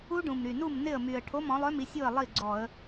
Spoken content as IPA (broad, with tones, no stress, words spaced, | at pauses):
u˦˥ɖũ˨˩mɾy˨˩ nu˥˩m nɪ˥˩ə̯my˨˩ə̯ ʈʰo˧˥˧mɔ̃˩˥lˠœ˧˥˧mi˩˥ sʲu˥˩ə̯ lˠi˥˩ɡ͡ǀɔ˧˩˧ə̯